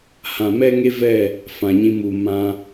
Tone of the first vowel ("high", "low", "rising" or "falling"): low